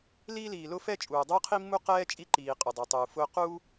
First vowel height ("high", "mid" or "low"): high